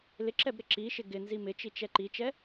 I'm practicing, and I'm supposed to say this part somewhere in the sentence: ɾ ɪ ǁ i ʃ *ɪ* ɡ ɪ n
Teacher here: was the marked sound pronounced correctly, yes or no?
yes